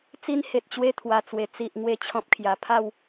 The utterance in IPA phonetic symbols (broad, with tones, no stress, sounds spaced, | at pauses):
t͡s i˧ n h e˨ t̚ t͡ɕ w e˧ t̪ʰ w a˨˩ t͡s w e˨˩ t͡s i˨ ʔ ŋ w e˦ t͡ɕʰ ɔ̃˦ p̚ kʰ j a˧ pʰ a˥˧ w